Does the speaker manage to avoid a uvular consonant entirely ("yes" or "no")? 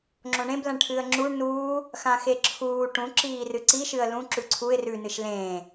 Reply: yes